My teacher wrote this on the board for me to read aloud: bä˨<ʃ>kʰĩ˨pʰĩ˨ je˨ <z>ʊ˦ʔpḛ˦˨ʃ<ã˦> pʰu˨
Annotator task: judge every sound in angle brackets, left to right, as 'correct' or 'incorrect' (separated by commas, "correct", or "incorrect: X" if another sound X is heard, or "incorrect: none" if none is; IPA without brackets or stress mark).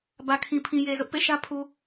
incorrect: none, correct, incorrect: ä˦